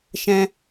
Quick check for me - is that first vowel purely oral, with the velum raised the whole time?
no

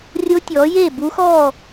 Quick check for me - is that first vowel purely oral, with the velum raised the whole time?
yes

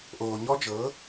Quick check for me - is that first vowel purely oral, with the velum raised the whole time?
yes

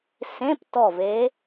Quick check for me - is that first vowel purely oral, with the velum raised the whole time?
no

